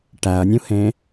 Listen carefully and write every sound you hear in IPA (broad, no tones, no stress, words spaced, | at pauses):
ʈæɐ̯nʲũhẽ